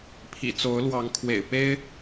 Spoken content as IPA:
pʰḭ˨˩t͡so˨˦ʊ̯ lwɑ˨˦ŋkʰwḛ˨˩ɪ̯ pe˦ɪ̯

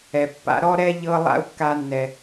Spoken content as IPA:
ɛ˨pːa̰˧ ɾɔ˦ɾɛ˦ ʎɤ˦ lˠa̰˦u̯kːa˧nːɛ˨

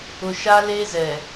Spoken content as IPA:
ʊ˨ ʃa˦le˦zɛ˨

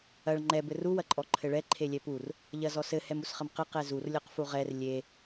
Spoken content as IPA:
ɐɭ ŋ͡ǃɛ bɘru wɐǃʼɔǃʰɘɭɛ ǃʰelʲɛpur | ʎɐzɔsɘ hɛmusχɐmqɘ qɛzur lʲɔqfuʁɛr lʲe

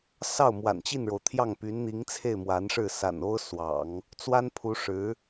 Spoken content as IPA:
sɑ˥˩ʊ̯mwa̰˨˩n t͡ɕi˥˩nɻo˩ʊ̯t̪ʰjɑ˥˩ŋ py˧˥nn̪i˧˥ŋt͡sʰe˥˩ɪ̯ mwa˧˥nʂɻ̩˥˩ sa̰˨˩n o˥ʊ̯swɑ̰˨˩˦ŋ | t͡swa˥npʰu˧˥ʂɻ̩˧˥

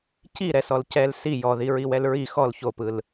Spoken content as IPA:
ciɾɛsɔl cɛl si jɔði ɹiwɛlɹi xɔl çopɯl

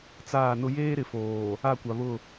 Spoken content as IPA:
t͡saː˦˨nʊ˦ jeː˦ɾɪ˨ foː˨ | a˦˨kʷa˨ βʊ˦˨

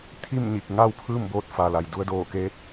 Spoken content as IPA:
t̪ʰi˥˨mɲi˧˩k̚ ŋa˥˨wpʰɯː˥˨mboː˧t̚ fa˩la˩j du˧ə̯doː˧˩keː˧˥t̚

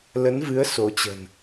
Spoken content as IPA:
lə˨˦nvɨ˨˦ə̯ so˨˦t͡ɕə̤˨˩n

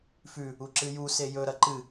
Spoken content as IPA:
fʉ | uǁɨju sejɵ ɾɐǃɨ

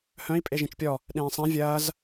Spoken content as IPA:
hœ̃i̯ pʼeʒĩt͡ʃpʲɔ | ɗẽːsˤæ̃ vʲɐːz

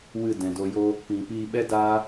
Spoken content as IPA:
wɨ˦˨dɛ̃˨do˧jo˦ | pĩ˨piː˧ɓɛ˦ da˦

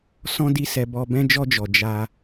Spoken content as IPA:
sɔ̃˦di˦sɛ˧bɔ˧ bɛ̃˧d͡ʒɔ˧d͡ʒɔ˨ d͡ʒa˧

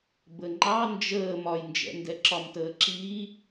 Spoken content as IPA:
bəŋ͡ǃɑ nd͡ʒəː mɒjnd͡ʒɛ̰ndɛ ǁɒmtəːǁi

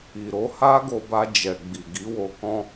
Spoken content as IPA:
i˨ɾo˨˦ ha˦ɡo˧ba˧ d͡ʒɛ˨ ɡ͡bi˨ɡi˨˦wo˧ kɔ̃˧

